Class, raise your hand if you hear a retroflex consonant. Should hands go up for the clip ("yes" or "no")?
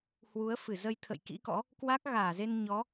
no